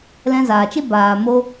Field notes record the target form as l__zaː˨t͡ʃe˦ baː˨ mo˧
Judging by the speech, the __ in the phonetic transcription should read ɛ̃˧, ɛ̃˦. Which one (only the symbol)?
ɛ̃˧